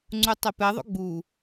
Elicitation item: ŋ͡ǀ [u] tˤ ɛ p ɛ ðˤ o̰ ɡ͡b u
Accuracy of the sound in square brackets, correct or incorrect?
correct